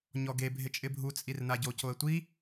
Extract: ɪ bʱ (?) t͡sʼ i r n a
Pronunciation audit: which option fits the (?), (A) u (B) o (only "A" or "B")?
A